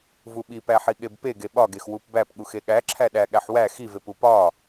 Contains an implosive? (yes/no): yes